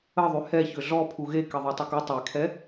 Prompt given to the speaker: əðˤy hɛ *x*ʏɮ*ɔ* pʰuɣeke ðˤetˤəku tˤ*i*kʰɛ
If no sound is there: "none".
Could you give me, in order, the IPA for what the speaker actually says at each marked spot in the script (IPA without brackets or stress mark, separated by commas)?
ç, ɔ, e